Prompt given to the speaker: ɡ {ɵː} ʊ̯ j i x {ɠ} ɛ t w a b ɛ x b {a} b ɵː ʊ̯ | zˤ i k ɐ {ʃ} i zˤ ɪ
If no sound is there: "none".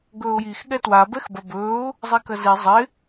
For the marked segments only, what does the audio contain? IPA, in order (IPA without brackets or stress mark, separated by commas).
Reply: ɵː, ɠ, ɐ, z